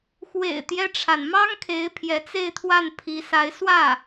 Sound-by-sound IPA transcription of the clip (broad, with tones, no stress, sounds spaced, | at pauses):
x w ḛ˨˩ ɪ̯ t̪ j ɛ˦ ʈ͡ʂʰ a˩ n m ɑ˥ ŋ kʰ e˧˥ ɪ̯ pʰ j ɛ˧˥ t͡s e˥˧ ɪ̯ t̪ʰ w a˥˩ n pʰ i˧˥ s a˧˥ ɪ̯ s w ä˥˩